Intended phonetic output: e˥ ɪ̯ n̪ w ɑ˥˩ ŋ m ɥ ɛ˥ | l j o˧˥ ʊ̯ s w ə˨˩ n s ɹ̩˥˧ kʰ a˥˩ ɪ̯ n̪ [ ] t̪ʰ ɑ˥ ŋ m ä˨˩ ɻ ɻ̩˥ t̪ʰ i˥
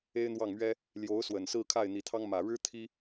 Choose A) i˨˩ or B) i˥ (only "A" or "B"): A